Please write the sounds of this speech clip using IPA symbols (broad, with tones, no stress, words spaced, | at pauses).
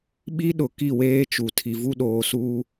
ɓi˦ɗʊ˨ ki˦˨weː˦t͡ʃu˨ tʰi˨vu˦ɗoː˨suː˦